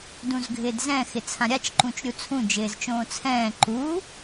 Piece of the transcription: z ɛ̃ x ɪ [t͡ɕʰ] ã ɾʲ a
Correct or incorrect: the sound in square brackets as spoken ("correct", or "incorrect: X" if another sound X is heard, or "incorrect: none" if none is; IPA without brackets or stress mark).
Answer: incorrect: t͡sʰ